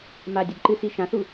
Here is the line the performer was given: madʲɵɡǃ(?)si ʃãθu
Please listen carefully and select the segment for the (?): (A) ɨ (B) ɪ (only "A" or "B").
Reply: A